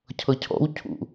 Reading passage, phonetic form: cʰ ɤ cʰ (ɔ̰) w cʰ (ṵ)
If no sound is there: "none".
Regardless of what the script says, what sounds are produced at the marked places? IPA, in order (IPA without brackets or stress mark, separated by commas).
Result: ɔ̰, ṵ